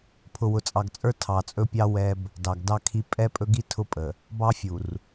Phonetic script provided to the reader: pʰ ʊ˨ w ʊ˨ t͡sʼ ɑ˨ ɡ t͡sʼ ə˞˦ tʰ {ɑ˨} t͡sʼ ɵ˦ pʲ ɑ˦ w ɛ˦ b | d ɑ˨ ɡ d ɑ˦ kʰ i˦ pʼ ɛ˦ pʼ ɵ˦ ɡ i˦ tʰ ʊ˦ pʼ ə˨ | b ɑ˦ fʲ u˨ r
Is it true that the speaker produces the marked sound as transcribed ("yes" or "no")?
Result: yes